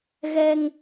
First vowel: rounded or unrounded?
unrounded